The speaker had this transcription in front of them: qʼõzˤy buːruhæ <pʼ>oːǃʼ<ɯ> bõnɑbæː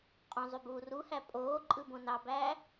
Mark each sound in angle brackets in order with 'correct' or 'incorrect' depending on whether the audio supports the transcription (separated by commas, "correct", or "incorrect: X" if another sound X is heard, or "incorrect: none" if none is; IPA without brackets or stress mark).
correct, correct